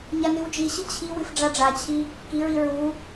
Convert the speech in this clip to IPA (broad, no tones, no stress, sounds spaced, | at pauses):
ɲ a n ɨ w d͡ʒ i ɕ ɨ t͡ɕʰ i w ɨ f ɖ͡ʐ a ɖ͡ʐ a t͡ɕʰ i | k i ɹ i ɹ u